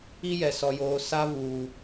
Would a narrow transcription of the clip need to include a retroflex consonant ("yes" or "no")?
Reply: no